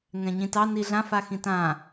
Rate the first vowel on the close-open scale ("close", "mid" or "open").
mid